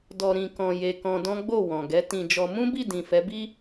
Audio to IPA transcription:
d ɔ˧ ɾ ĩ˧ k ɔ̃˧ j e˧ k ɔ̃˧ d ɔ̃˦ ɡ͡b o˦˨ w ɔ̃˨ ɡ ɛ˨˦ t ĩ˧ d͡ʒ ɔ˧ m ũ˦ b i˦˨ d ĩ˨ f ɛ˨˦ b i˦

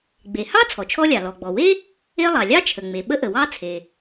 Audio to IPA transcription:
ɡ͡b e˩ h ɑ˥ t͡sʰ ɔ˩ t͡ʃʰ ɔ˥ lʲ ɑ˩ l ɔ˩ ɡ͡b ɔ˩ w e˥ | e˥ lˠ ɑ˩ lʲ ɑ˥ t͡ʃʰ ə˩ ŋ͡m e˩ ɓ ə˥ ʔ ə˩ w ɑ˥ t͡sʰ e˩

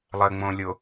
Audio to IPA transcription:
lˠ ɘ ŋ͡m õ lʲ o

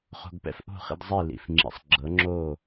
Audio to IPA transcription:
χ o̤˧ ɡ p ɛ̰˥ f ʔ o̤˥˩ χ ḭ˧ d zˤ i˥˩ l ḭ˩ f ŋ͡ǁ ḭ˩˥ sˤ ɡ͡ǁ ɤ˩˥ ŋ͡ǁ o˥˩

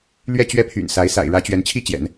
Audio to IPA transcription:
l ɥ ɛ˥˧ t͡ɕ ɥ ɛ˥˩ pʰ y̰˨˩ n s a˧˥ ɪ̯ s a̰˨˩ ɪ̯ ɻ ä˧˥ t͡ɕ ɥ ɛ˧˥ n t͡ɕʰ i˥ t͡ɕ j ɛ̰˨˩˦ n

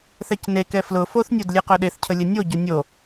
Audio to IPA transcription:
θ ɛ c n e k ɛ f l ʊ f o θ nʲ o d lʲ e q œ ɗ e θ cʰ ə lʲ ə nʲ o ɟ ʊ nʲ o

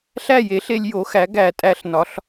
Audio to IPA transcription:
ɬ æ˥˨ j e˩˥ ɬ e˧ lʲ j o˩˥ x æ˩˥ ɡ æ˧˩˧ tʼ æ˧˩˧ ɬ n ɒ˩˧ ɬ

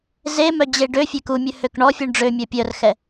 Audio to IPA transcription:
z e m œ d͡ʑ e ɖ ø fʲ e k u mʲ ø h ø k ɳ ɔ fʲ u ɳ ɖ͡ʐ ø mʲ œ pʲ œ r x ɛ

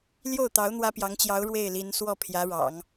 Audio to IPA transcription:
l j o˥˩ ʊ̯ t̪ ɑ˧˥ ʊ̯ n̪ w ä˥ p j ɑ˧˥ ŋ t͡ɕ j ɑ˧˥ ʊ̯ ɻ w e˥˩ ɪ̯ l i˧˥ n s w ɔ˥˩ pʰ j ä˧˥ ɻ ɑ̰˨˩˦ ŋ

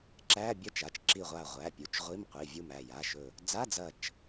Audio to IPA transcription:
ǁ æ˧˥˧ bʲ ɐ˧˥˧ t͡ʃ a˩˧˩ t͡ʃ ǁ i˧˩ ʁʷ a˧˩ ʁʷ æ˩˧˩ pʲ u˩˧˩ t͡ʃ ʁʷ i˧˥˧ m qʷ i˩˧˩ vʲ u˧˩ m æ˧˩ j a˩˧˩ ʃ ɵ˧˩ | d͡z a˧˥˧ d͡z ɐ˧˩ t͡ʃ

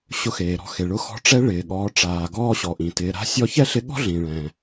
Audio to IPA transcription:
ɕ ʊ˧ x eː˩ ɾ ɔ̤˧ x e˩ ɭ ʊ˧ x ɔ̤˧˥ ʈ͡ʂ ɛ˧˥ ɭ ɪː˩ ɠ ɔː˩˧ ʈ͡ʂ aː˩ ɡ ɔː˧ ɕ ɔ˩ ʔ ĩ˩ t ɪː˩˧ ɾ a̤˧˥ sʲ ɔ˧˥ ç ɛ˥ ɬ ɪ˧˥ ɠ ɔ̤˥ ɮ ĩ˩ ɭ ɛ̃˩

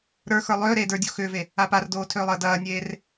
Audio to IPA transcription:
ɾ ə˞ x ə˞ lˠ ʏː ɾ eː d ə˞ dʲ o x ʏː v e | a p a r d oː tʰ ʏː lˠ əː d ɐː nʲ eː r

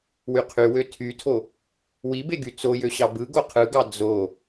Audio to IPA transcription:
w y qʰ y w ø tʰ y tʰ o | w i b e ɡ y t͡s o j ø ɕ ɑ b ɯ ɡ o qʰ ɯ ɡ ɑ d͡z o

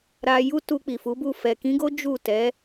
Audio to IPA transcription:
ɾ a˧ j u˦ t u˧ k͡p i˨ f u˨˦ b u˦˨ f ɛ˨ k ĩ˨˦ ɡ o˦ d͡ʒ u˦˨ t ɛ˨˦

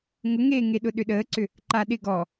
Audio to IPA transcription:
ŋ ʊ ŋ eː ŋ e ɗ ʊ ɗ ʏ ɗ əː ǀ ʏ | ǃ a ɗ ɪ ɡ ɔ

